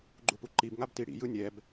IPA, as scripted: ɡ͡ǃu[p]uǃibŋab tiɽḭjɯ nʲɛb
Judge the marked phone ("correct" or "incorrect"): correct